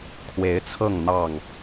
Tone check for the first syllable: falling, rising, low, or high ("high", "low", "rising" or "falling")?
rising